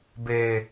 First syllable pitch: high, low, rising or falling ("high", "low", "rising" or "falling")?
low